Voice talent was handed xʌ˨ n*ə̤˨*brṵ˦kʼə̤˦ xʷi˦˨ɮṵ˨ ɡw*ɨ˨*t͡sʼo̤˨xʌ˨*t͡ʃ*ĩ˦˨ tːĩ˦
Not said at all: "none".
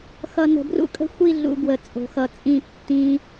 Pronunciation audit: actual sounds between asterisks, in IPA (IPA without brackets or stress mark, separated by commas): ə̤˨, ə˨, t͡sʼ